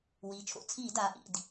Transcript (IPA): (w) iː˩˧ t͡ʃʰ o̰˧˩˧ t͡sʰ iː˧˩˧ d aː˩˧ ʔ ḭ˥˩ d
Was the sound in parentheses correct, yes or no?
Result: yes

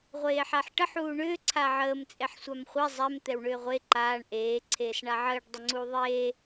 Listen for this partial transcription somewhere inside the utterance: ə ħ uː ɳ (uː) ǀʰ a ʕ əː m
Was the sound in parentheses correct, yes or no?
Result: no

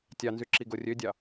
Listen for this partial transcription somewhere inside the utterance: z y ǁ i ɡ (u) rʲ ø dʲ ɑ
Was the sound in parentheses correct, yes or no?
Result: no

